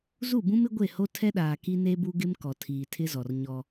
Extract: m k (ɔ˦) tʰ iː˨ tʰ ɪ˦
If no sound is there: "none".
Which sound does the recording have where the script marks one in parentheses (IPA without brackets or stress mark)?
ɔ˨